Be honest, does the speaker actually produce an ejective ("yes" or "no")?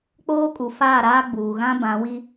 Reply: yes